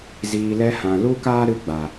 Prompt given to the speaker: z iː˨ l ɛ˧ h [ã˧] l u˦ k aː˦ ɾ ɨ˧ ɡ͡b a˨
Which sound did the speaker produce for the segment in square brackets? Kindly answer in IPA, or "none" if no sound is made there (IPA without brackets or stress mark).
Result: ã˨